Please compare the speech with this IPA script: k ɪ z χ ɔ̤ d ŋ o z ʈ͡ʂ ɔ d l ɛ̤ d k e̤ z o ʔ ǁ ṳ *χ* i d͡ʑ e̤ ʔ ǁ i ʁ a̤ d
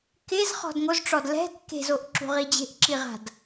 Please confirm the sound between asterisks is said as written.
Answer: no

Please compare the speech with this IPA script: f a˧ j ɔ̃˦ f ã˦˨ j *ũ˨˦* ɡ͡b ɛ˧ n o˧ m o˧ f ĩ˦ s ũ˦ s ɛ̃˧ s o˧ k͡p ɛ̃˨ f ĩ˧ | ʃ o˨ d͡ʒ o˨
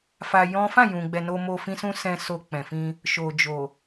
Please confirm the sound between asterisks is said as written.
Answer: no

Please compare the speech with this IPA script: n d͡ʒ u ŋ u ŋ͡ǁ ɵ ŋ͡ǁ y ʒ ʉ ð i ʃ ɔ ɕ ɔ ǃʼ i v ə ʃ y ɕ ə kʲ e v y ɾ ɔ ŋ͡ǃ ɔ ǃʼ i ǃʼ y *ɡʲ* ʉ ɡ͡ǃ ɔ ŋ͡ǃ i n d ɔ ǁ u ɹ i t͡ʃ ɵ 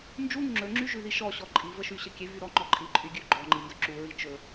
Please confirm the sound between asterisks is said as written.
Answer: yes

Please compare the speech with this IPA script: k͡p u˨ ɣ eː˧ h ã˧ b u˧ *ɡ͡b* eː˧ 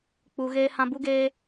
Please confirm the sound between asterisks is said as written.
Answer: no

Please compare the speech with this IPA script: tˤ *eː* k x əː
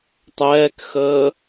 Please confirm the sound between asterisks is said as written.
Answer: no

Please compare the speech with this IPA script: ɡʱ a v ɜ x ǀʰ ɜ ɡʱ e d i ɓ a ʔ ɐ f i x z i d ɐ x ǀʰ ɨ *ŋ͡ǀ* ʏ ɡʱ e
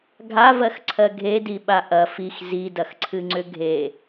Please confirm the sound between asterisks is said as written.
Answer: yes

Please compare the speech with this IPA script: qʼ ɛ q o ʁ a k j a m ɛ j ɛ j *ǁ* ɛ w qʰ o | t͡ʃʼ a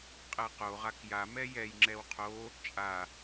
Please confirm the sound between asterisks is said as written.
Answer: no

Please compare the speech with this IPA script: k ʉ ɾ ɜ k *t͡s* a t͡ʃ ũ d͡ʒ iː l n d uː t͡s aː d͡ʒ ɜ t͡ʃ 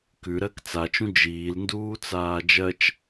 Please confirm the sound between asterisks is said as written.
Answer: yes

